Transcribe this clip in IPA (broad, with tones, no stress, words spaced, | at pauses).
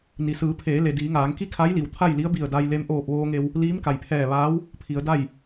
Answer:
ni˩sɯː˩˧pʰeː˩˧le˩ diː˩˧ŋaː˩˧ŋki˥˨ kʰa˧˥j li˩wt̪ʰa˥˨j li˧˥ə̯bi˧˩ə̯da˧j le˧mʔoː˧˩p̚ ʋoː˧ŋe˧w | liː˧˥mka˩j pʰɛː˧˩ʋaː˧˥w | pʰi˩˧ə̯da˥˨j